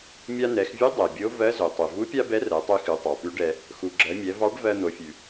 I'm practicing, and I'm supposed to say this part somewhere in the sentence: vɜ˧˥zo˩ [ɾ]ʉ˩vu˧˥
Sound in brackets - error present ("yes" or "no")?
yes